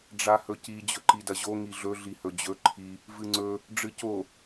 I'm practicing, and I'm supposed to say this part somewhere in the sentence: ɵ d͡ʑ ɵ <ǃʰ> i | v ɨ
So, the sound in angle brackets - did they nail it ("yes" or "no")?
yes